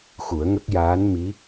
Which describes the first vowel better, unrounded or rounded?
rounded